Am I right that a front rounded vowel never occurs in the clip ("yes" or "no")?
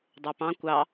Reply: no